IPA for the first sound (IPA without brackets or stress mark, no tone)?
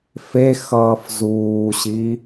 f